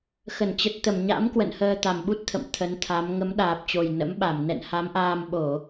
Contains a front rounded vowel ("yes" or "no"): no